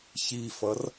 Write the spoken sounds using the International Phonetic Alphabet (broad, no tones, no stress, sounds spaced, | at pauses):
ç i f ʌ r